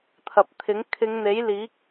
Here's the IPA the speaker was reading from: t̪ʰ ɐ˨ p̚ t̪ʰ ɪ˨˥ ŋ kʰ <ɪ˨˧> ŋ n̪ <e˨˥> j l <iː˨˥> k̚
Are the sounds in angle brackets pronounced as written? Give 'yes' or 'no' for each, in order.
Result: yes, yes, yes

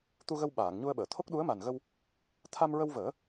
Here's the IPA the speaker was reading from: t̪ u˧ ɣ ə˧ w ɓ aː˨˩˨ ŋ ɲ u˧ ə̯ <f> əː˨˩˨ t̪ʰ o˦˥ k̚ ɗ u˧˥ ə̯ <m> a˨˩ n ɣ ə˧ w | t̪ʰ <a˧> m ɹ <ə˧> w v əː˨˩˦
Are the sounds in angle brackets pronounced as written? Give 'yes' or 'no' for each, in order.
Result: no, yes, yes, yes

